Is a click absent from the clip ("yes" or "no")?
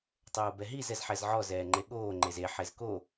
no